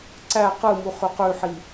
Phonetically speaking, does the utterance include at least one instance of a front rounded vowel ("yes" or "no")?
yes